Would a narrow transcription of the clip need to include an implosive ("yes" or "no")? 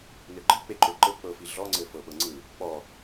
yes